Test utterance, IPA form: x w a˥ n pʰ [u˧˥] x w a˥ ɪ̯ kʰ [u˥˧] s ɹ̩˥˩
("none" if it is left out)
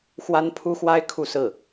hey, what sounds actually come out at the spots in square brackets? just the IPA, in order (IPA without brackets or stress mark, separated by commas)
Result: u˥, u˥˧